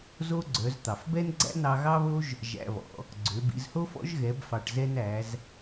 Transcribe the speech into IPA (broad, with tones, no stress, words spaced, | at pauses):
zo˥ ɡ͡ǀœ˩˧z t̪ɑ˩fbɛ˥n ɡ͡ǀæ̰˥nɑ˧ ɣɑ˥βo˥ʒ | ʒæ̰˧βɔ̰˩˧ | ɡ͡ǀø˩˧bḭ˩˧zho˥fɔ̰˧˥ʒ ɣɛ˩˧bfɑ˩ʈzɛ˧n æ˩˧z